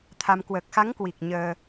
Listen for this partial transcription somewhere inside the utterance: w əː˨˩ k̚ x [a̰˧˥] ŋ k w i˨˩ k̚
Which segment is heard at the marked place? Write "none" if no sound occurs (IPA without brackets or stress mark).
a˨˦